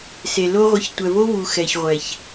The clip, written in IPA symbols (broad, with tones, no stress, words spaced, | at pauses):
se˨lo˦ʁʷə˧ç tʷɛ˨vo˦vu˨ xɛ˨çʁʷɛ˨ç